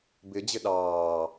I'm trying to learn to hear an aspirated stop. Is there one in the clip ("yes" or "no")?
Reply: no